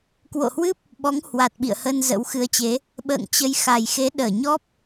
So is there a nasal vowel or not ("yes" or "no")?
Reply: no